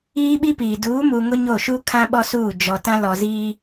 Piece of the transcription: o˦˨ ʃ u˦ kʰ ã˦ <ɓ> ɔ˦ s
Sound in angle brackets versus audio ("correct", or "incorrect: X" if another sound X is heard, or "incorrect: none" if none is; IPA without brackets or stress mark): correct